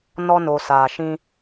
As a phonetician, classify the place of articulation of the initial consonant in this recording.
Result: alveolar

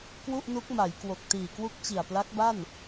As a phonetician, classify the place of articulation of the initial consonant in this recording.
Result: velar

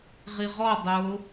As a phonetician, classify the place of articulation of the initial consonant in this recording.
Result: uvular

